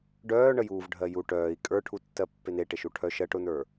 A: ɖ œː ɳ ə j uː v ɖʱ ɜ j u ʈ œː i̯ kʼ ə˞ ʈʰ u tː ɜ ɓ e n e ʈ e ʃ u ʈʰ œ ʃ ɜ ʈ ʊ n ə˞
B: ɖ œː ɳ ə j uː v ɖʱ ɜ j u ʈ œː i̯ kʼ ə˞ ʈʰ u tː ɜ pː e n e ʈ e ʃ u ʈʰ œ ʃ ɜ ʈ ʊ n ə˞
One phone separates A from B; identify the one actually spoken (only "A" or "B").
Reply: B